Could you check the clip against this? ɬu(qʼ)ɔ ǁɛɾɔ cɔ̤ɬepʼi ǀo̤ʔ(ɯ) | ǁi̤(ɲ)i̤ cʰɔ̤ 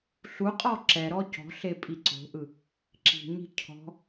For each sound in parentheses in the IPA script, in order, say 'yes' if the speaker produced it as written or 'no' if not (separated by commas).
yes, yes, yes